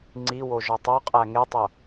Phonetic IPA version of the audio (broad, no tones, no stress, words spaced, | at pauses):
ŋ͡ǀiwo ʒɒtˤoqʼæ ŋetˤo